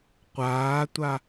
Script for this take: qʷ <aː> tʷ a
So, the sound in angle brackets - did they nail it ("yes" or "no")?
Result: yes